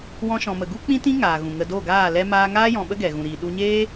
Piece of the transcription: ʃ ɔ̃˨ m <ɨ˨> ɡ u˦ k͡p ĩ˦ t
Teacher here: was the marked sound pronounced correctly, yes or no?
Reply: no